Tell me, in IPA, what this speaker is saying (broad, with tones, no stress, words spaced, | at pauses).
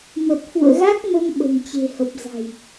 mə˨˩t̚fṵ˧˨ə̯ɣa˦˥k̚mə˧m ɓə̤˨˩nt͡ɕe̤˨˩hə˨˩p̚za̤˨˩j